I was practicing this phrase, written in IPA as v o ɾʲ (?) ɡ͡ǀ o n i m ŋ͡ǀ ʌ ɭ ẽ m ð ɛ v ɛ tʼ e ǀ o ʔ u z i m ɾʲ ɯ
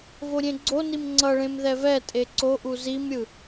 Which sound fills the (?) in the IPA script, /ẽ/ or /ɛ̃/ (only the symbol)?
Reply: ẽ